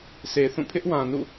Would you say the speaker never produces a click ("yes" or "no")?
yes